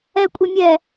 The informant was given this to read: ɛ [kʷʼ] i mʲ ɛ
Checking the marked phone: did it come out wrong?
no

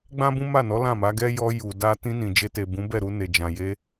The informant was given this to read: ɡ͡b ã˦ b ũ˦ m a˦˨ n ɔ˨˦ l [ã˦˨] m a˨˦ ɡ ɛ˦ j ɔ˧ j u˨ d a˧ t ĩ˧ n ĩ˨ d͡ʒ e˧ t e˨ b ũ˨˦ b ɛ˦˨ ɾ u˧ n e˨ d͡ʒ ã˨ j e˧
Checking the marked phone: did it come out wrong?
no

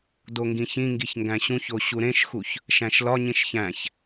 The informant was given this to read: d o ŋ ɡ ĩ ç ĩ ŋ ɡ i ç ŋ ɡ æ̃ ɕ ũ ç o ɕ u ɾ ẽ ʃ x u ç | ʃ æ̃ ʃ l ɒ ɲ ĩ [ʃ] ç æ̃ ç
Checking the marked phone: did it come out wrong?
no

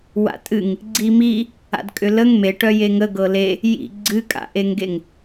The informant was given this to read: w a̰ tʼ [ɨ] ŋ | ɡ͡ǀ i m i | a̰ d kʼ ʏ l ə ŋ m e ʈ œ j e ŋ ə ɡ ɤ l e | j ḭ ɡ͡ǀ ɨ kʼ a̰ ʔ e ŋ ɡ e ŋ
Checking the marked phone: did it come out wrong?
no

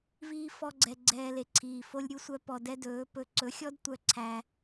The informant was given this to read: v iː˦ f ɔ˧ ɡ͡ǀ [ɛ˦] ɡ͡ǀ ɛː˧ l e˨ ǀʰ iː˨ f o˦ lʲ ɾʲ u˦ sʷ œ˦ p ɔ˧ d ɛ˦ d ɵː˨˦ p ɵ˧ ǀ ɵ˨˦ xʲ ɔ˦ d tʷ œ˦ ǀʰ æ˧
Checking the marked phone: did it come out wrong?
yes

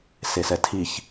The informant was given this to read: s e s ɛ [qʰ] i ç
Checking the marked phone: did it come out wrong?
yes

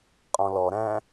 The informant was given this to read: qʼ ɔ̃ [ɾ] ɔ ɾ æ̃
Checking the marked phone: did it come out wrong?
yes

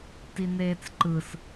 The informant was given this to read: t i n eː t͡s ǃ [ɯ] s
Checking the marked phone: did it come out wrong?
no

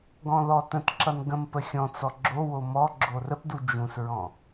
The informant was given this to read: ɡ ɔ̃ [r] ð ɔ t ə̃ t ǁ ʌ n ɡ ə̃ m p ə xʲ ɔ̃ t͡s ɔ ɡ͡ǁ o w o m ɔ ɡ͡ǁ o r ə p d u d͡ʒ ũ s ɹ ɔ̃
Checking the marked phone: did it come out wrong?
yes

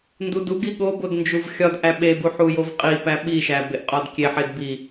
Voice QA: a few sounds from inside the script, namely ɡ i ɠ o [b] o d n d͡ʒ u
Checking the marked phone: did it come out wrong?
no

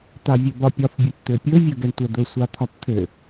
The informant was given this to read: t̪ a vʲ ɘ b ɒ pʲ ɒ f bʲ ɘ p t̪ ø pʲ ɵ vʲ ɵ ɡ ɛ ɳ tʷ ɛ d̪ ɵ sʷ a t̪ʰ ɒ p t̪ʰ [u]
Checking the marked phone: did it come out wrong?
yes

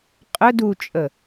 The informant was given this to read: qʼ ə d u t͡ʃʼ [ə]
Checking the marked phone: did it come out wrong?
no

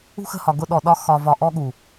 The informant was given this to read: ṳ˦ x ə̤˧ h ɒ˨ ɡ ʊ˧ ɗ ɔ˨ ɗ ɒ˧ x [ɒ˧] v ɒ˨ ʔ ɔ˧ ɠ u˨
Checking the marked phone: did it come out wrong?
yes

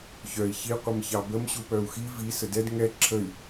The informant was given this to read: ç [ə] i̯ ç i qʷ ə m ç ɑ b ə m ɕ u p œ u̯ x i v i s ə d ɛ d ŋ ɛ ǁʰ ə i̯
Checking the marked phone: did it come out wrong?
yes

